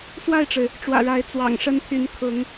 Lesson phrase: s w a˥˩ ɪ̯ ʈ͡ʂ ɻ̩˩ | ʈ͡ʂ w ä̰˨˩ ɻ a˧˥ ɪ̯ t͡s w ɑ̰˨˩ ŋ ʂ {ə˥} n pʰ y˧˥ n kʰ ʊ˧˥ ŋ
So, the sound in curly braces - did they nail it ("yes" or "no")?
yes